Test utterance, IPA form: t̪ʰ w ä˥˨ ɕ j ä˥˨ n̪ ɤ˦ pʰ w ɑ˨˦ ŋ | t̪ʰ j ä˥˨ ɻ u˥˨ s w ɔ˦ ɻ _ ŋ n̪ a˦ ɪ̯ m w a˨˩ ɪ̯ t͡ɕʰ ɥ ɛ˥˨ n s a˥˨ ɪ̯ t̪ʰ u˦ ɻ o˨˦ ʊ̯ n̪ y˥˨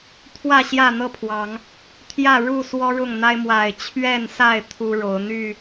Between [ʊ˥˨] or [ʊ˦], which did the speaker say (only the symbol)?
ʊ˥˨